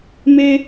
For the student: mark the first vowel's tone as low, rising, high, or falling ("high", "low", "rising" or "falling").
high